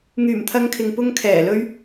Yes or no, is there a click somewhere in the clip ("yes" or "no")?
no